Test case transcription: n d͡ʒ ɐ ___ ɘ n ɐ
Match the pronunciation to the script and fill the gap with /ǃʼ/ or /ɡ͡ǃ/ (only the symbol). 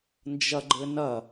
ɡ͡ǃ